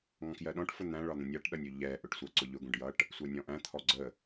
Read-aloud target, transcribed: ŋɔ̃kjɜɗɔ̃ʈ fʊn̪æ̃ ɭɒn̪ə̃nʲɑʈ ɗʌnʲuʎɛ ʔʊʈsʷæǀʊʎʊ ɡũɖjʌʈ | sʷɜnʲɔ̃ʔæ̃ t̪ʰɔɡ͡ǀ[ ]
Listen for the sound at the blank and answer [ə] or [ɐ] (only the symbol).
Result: ə